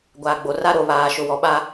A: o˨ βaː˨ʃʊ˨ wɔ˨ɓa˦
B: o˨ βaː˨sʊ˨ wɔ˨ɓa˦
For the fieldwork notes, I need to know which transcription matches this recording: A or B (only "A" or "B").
A